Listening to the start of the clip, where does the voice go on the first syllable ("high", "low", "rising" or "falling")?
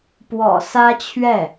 low